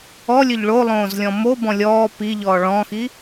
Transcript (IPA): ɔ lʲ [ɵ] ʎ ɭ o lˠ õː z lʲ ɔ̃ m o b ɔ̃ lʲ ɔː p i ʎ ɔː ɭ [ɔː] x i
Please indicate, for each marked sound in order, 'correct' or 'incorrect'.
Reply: correct, incorrect

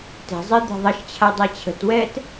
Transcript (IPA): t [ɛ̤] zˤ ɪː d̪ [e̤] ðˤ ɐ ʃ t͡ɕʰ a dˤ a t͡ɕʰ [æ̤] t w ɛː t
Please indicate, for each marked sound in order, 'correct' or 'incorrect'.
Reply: correct, correct, incorrect

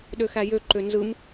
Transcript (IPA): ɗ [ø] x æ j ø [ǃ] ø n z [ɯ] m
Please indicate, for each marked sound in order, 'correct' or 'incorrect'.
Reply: correct, correct, correct

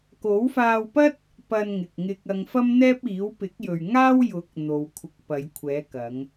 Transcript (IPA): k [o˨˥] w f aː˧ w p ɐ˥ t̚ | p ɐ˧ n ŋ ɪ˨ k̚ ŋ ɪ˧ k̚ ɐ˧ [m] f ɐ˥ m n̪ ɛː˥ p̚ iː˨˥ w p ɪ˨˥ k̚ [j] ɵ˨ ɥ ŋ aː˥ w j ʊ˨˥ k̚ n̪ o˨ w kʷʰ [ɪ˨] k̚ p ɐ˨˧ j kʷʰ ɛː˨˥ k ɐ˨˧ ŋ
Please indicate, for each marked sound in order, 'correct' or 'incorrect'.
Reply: correct, incorrect, correct, incorrect

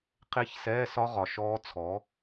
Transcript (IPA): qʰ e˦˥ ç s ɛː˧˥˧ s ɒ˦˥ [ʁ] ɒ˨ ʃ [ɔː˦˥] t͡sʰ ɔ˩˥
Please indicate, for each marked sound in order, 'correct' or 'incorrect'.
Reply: correct, correct

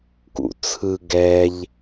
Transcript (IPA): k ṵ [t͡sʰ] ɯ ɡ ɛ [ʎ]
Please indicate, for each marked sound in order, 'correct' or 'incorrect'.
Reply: correct, correct

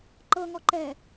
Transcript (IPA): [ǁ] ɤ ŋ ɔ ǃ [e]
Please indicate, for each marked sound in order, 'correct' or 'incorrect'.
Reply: incorrect, incorrect

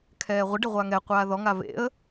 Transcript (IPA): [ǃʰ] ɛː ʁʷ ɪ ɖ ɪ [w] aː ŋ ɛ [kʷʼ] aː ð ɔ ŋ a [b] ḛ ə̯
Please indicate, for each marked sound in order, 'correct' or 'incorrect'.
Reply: incorrect, incorrect, incorrect, incorrect

